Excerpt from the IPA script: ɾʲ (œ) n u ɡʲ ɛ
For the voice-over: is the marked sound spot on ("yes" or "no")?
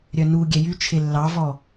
yes